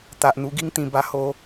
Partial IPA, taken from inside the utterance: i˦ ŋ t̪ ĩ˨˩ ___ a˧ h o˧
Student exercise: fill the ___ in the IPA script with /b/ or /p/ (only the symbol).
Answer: b